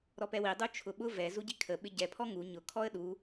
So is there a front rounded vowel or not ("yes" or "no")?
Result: no